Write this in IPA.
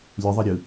lʲ ɯ ðˤ i ɾʲ ɯ

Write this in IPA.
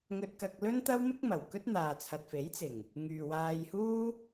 ŋ ɵ˧ t̚ k ɐ˧ k̚ l ɵ˥ n t̪ ɐ˥ w m ɪ˥ k̚ m ɐ˨˩ w k ɵ˥ t̚ n̪ aː˨ t͡sʰ ɐ˨ t̚ f e˨˥ j t͡s ɪ˨˩ ŋ | ŋ yː˨ w aː˧ j h uː˥

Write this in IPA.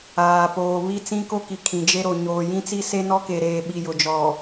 aː˨ p oː˨ β i˦ t͡s ĩ˦ k o˦ k i˨ kʰ ĩ˨ d͡ʒ e˦ ɾ o˨ ɲ oː˨ j ĩ˦ t͡s i˦ s e˦ n ɔ˦ k e˨ ɾ eː˨ ɓ i˨ j ʊ˨ d͡ʒ ɔ˨

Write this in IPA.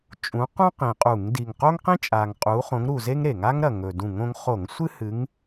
t͡ʃʼ ũ˨˦ q ũ˥ q ĩ˨˩ qʼ u˧˩˧ ŋ d i˨˩ ŋ q o˥ ŋ q ĩ˥ t͡ʃʼ a˨˩ ŋ qʼ u˨˦ χ õ˨˦ ŋ ɾ u˨˩ z e˥ ŋ ɾ e˧˩˧ ŋ a˥ ŋ ɾ ɐ˨˩ ŋ ɵ˨˩ d ũ˧˩˧ ŋ õ˨˦ ŋ χ o˧˩˧ ŋ sʷ ɨ˥ h ɨ˨˦ ŋ

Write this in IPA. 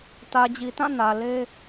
t ä˨ d͡ʑ i˨ t ã˦˨ n ä˨ l e˦

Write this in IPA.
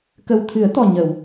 k ə˨˩ w t̪ʰ ɨ˨˩˦ ə̯ t̪ ɔ˨˩ ɲ ə˨˩˨ w

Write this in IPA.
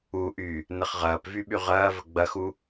u ʔ y | n ə χ ʁ ɐː p v y ɓ y ʁ ɐː v ə ɡ͡b ɐ x u

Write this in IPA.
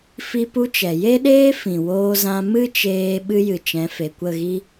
f i˦ p u˦ t͡ʃ ɛ˨ j e˦ ɗ eː˦ f ĩ˨ w oː˧ z ã˧ m ɨ˦ t͡ʃ eː˧ ɓ ɨ˦ j ɨ˨ t͡ʃ ɛ̃˨˦ f e˨ kʷ ə˦˨ ɣ i˦

